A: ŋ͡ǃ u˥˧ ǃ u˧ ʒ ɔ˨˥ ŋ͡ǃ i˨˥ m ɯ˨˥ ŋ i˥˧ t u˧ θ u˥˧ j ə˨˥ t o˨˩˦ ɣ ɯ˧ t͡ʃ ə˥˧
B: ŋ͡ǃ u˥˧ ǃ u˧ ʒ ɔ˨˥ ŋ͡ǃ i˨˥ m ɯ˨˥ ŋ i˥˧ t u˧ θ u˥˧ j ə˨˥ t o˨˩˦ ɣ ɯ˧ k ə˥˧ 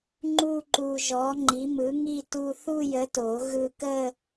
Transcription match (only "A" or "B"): B